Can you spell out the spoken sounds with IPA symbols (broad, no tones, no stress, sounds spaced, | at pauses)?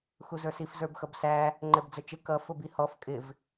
x u z ə˞ s i f z ə˞ b x ʌ b s æ | ŋ͡ǃ ɛ b d͡z ə t͡ʃ ɪ k ʌ f ʊ b i h ɔ f kʼ ɪ v